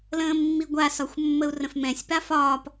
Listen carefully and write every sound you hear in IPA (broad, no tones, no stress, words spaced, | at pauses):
lə̃ːmːiɡʷasɒxʷ mːəu̯rə̃fmɛ̃sʲpa fɒːp